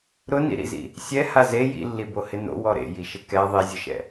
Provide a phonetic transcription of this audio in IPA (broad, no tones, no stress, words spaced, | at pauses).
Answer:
ɾʊnḭɾḭzḭ | sʲɛha ze jḭlːibohɪ no̰wɔ ɾḛjiʃɪ kɛ ðˤizʲʊʃɛ̰